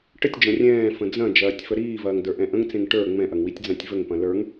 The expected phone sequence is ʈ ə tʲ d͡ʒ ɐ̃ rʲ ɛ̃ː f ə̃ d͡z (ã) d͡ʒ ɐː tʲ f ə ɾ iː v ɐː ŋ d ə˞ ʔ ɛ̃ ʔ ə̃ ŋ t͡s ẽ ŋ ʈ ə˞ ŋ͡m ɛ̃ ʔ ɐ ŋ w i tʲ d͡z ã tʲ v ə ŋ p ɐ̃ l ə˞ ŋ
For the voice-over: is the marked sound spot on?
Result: no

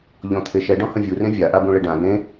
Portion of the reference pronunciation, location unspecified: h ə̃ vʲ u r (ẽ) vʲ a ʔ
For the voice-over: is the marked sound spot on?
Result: yes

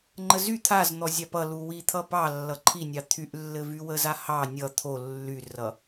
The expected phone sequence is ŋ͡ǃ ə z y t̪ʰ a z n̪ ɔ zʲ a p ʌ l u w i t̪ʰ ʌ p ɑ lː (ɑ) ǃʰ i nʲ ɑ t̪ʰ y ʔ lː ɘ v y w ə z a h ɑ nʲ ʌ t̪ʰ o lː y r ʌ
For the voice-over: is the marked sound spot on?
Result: no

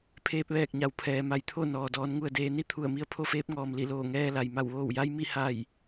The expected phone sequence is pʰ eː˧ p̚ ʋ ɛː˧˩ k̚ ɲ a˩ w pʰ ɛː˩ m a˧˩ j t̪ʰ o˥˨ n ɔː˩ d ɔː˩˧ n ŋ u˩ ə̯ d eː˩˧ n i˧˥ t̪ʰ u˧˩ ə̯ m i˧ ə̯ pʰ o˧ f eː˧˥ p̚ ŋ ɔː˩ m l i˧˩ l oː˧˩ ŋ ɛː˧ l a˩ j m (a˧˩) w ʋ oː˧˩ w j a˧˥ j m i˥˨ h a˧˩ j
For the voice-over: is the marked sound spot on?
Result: yes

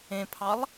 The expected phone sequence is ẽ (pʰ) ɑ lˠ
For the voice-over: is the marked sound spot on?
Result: yes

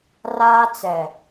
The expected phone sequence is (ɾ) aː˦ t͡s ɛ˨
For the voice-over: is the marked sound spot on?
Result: no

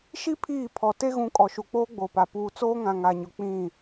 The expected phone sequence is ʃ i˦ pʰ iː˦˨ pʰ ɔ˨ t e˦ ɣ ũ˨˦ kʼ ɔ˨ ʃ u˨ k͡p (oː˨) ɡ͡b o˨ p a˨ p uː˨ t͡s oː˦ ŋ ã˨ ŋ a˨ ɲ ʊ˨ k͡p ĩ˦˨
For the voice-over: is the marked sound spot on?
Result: no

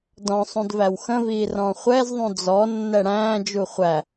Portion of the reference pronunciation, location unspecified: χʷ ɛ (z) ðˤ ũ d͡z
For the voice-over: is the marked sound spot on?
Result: yes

